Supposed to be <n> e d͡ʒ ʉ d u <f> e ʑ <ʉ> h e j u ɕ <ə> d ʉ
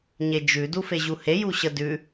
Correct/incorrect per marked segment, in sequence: incorrect, correct, incorrect, correct

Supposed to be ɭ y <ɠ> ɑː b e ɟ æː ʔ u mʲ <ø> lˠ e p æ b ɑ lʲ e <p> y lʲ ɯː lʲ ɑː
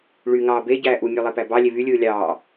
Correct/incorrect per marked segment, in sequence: incorrect, correct, incorrect

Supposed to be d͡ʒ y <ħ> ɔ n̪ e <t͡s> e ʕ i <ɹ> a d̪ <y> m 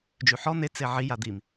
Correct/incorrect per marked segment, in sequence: correct, correct, incorrect, incorrect

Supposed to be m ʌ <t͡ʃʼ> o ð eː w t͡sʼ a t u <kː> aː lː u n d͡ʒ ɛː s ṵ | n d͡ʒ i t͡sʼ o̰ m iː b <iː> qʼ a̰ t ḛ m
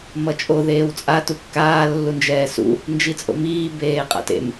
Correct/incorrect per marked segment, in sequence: correct, correct, incorrect

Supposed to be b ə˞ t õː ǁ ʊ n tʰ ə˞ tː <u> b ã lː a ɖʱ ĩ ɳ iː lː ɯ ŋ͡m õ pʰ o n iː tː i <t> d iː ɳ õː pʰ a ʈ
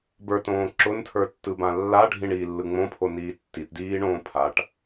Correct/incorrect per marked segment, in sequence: incorrect, correct

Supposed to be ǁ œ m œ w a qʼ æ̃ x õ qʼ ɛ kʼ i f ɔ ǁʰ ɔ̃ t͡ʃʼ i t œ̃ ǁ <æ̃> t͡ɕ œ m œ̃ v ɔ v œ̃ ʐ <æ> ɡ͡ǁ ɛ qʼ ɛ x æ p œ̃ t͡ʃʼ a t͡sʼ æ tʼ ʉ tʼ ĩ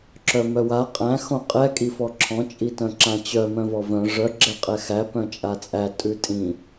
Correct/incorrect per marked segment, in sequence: incorrect, incorrect

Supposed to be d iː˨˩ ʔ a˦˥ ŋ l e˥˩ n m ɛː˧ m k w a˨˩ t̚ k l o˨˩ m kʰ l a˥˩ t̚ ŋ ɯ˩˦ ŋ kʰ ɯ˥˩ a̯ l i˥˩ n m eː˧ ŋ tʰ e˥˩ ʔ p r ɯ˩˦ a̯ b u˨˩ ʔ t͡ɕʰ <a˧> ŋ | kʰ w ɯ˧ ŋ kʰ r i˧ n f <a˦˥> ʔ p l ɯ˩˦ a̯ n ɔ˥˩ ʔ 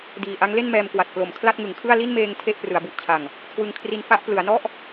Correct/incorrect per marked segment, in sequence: incorrect, correct

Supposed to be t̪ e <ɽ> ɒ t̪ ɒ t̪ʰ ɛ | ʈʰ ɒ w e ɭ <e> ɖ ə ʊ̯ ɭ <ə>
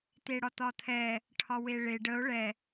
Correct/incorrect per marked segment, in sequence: correct, correct, incorrect

